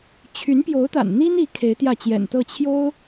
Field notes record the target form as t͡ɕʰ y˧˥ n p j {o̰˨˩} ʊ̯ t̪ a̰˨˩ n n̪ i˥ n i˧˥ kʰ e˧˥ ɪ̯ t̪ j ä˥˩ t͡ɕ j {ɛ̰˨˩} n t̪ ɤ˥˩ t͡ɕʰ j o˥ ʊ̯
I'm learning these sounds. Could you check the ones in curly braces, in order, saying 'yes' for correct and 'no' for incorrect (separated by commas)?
no, yes